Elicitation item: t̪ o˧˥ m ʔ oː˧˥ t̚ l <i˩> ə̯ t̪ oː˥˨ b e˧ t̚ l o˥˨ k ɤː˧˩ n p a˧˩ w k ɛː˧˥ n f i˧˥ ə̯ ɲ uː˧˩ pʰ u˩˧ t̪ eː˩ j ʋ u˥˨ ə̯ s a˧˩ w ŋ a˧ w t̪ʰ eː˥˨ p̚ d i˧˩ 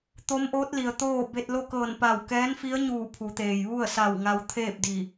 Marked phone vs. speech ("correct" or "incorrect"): correct